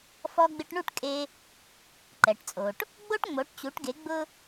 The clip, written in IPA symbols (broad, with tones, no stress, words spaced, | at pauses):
fɔ˧ɡ͡bɪ˧ʈɳu˥˩ʈkʼe˧ | ǃɛ˩ʈt͡sʼo˩ʈ | ɡ͡bo˥ʈŋ͡mo˩˥ʈt͡ɕu˩˥ʈɡe˩˥ ɡ͡bʊ˥